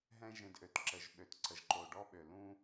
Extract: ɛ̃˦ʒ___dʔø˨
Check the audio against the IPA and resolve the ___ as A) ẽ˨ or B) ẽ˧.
B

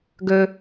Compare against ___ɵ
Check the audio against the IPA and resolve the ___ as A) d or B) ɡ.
B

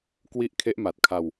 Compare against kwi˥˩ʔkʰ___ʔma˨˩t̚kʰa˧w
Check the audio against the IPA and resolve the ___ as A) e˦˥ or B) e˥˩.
A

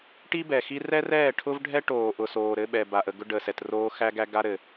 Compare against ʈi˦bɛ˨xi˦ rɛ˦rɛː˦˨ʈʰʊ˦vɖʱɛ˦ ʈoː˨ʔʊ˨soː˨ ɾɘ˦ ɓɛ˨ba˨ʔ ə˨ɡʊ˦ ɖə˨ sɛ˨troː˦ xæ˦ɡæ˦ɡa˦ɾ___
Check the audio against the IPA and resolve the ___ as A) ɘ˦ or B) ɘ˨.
B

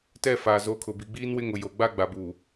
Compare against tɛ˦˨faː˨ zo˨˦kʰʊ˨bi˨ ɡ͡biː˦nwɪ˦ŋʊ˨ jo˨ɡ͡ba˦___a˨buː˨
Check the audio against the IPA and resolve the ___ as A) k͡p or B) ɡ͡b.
B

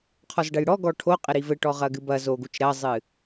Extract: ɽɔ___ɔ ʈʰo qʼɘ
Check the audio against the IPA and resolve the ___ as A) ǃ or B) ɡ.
B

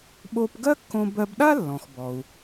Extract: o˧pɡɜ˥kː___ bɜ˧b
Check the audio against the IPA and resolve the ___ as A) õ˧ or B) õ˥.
A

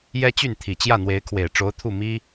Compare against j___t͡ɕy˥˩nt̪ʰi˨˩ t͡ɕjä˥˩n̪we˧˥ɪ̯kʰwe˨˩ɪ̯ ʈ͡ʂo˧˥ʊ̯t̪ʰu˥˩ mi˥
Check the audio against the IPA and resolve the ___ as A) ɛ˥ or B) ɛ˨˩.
A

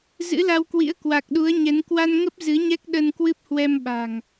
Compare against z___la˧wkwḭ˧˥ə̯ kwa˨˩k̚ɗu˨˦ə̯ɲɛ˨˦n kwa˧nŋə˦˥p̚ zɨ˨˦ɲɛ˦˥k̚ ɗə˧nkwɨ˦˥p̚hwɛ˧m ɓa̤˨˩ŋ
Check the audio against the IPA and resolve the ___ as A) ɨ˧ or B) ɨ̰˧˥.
B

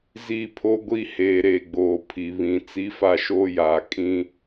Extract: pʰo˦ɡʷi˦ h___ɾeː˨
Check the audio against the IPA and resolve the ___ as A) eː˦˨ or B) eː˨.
B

